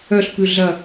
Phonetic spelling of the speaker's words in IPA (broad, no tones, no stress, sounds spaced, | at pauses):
œ ɬ p ʉ ɮ ɐ